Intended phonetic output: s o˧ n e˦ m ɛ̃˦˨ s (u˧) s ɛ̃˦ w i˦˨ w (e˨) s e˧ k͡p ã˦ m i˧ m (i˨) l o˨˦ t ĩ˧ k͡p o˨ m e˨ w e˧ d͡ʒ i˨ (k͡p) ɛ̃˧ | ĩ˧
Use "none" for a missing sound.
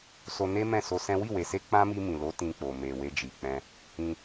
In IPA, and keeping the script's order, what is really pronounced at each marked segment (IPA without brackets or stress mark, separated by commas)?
o˧, e˨, ĩ˨, k͡p